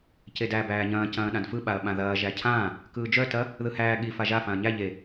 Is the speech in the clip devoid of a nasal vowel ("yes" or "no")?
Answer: no